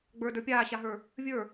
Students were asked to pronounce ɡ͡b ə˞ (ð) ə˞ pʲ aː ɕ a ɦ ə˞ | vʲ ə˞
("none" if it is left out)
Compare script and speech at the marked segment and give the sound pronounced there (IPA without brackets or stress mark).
d